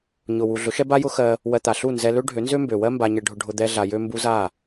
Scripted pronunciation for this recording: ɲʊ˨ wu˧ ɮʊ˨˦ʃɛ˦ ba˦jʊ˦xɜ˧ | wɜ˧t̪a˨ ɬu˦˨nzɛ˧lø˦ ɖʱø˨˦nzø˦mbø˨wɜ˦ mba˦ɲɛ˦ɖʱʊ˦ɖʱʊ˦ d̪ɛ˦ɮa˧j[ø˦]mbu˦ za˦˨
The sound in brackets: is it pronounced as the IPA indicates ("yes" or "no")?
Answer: yes